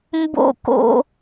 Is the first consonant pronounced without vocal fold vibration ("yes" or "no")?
no